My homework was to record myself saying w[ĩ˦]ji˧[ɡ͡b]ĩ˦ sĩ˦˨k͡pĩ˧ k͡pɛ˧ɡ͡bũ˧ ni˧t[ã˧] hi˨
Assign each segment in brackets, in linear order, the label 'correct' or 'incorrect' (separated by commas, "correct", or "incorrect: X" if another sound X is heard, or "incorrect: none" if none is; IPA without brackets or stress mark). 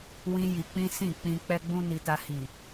correct, incorrect: k͡p, incorrect: a˧